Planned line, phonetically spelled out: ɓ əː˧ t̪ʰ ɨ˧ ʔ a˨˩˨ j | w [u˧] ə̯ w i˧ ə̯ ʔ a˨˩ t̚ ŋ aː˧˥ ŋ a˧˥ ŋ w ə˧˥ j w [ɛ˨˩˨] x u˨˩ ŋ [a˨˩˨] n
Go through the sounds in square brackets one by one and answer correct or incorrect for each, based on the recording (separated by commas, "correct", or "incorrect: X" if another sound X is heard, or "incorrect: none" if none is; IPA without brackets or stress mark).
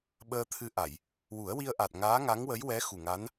incorrect: u˨˩˦, incorrect: ɛ˧˥, incorrect: a˧˥